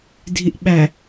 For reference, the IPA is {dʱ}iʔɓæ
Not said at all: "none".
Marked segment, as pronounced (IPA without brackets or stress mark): dʱ